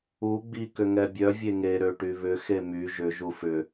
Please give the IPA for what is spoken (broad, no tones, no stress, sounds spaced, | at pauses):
u ɡ͡b i k ʏ ŋ ɛ bʲ œ vʲ e ŋ e ɾ ø ʈ y β ʏ x e m y ʒ ʏ ʒ u f ʏ